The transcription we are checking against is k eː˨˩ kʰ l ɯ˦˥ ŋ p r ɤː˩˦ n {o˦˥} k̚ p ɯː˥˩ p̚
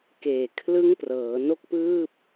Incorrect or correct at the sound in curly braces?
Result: incorrect: o˥˩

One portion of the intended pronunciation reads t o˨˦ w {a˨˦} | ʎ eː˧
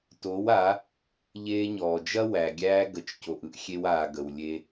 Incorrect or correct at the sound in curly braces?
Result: correct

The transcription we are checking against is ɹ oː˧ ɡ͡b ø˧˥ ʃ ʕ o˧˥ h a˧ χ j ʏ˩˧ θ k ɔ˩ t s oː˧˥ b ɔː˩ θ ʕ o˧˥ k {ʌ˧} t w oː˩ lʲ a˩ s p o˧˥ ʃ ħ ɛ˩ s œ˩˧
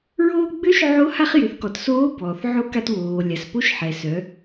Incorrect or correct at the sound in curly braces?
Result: incorrect: a˧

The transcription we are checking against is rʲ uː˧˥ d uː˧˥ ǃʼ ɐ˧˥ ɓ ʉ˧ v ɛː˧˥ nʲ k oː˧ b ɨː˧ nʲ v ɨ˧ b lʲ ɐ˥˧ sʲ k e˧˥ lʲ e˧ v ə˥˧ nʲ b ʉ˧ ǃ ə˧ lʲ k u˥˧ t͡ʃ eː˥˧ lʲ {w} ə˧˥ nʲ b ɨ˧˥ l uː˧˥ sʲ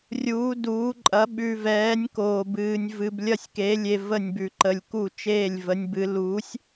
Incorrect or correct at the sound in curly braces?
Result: incorrect: v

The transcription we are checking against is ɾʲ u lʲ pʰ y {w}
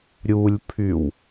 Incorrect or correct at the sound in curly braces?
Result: correct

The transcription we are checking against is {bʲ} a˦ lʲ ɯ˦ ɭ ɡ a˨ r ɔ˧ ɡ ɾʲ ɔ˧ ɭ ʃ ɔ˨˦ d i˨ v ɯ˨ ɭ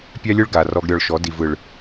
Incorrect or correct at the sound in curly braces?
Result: incorrect: pʲ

